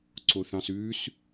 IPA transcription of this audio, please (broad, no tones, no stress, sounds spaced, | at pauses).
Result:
ǀ o θ ɑ̃ s ʉ s